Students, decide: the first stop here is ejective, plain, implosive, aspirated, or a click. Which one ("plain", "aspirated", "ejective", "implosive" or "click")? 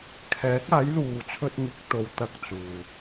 aspirated